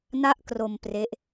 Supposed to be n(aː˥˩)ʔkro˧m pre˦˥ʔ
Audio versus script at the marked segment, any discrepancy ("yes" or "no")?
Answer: yes